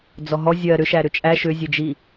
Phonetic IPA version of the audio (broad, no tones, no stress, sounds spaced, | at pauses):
d͡z ɔ ɦ ɔ zʲ ɜ ɾ ʏ ʃ æ ɾ ʏ t͡ʃʼ æ ʃ ʏ zʲ e d͡ʒ i